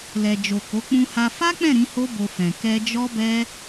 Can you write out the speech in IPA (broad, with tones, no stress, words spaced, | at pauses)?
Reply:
lɛ˨d͡ʒo˨ko˨˦ k͡pũ˧ha˧ fa˦k͡pɛ̃˦˨ ɾĩ˨˦ho˦bo˧fɛ̃˨ kɛ˧d͡ʒɔ˦bɛ˦